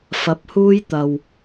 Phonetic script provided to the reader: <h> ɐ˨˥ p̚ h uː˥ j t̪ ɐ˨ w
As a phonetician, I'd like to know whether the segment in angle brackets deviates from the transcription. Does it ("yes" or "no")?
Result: yes